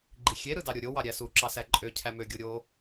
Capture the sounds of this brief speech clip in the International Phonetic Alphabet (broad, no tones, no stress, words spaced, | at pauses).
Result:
ɡ͡ǃixʲe ɾɯdɑɾʲoɾʲo wɑɾʲæsu ǁɑsæǃʼø cʰæmø ɡʲoɾʲo